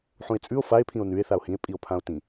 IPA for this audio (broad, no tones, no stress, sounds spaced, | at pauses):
ħ ũ e̯ t͡sʼ ʉ o̯ f a e̯ pʰ ĩ o̯ n ʉ e̯ θ a o̯ h ĩ e̯ pʼ i o̯ pʰ ã o̯ t ĩ